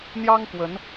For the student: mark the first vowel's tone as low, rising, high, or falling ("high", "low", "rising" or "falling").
high